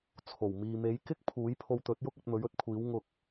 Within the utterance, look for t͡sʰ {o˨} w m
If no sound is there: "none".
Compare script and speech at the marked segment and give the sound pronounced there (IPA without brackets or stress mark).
o˨˩